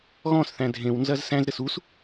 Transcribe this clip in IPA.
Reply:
ɣɔ̃sθæ̃ dʱẽwnzɐz sæ̃zɾɘs us

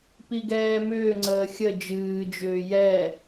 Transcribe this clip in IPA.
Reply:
piɡɛːmʏːŋ͡ǀəː xʲə d͡ʒɨːd͡ʒʏː jɛ

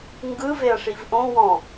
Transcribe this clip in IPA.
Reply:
ŋɡɯveɐ̯ ʂivʔõ wɔ̃

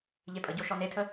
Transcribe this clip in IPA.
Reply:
ʎepʼəɟo ʃɔnetʰə

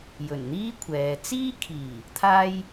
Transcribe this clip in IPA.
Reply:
jɵ˨˩nn̪iː˥kʷʰɛː˨ t͡siː˥kʰiː˨˩ | t̪ʰaː˧j

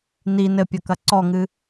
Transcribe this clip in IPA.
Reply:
ni nɘpʲɐkɐ ǀɔŋɨ

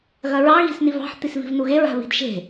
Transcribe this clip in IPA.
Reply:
ɣɐɹɑ ɣi̤snivɑ̤ħ t̪isvi̤vnuɣe ɹa̤βi̤dʃe̤

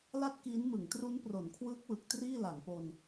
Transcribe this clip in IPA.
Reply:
la˥˩t̚kiː˦˥nmɯ˩˦ŋ tru˦˥npro˩˦nkʰwɯː˦˥k̚wɯ˨˩k̚ triː˥˩la˩˦ŋpo˧n

